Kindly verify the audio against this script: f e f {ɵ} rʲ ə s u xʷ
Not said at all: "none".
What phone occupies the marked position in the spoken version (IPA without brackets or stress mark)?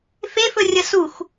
ɵ